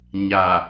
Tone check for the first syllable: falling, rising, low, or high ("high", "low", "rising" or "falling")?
low